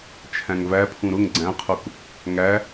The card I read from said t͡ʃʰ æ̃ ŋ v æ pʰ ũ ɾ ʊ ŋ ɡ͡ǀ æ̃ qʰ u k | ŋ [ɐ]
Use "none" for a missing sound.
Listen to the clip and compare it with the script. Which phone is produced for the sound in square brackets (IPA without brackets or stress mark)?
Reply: æ